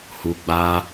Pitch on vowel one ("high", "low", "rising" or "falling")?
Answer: low